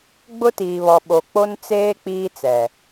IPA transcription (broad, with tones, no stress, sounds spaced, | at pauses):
ɡ͡b ʊ˦ t iː˨ β ɔ˨ ɓ o˨ k͡p o˦ n t͡s eː˦ k͡p iː˦ t͡s ɛ˨